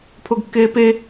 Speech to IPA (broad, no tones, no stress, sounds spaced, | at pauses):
pʰ o ɡ kː eː p e